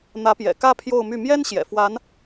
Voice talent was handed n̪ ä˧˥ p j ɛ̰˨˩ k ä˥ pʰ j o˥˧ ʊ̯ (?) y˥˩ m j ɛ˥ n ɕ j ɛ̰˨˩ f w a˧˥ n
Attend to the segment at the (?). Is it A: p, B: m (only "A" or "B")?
B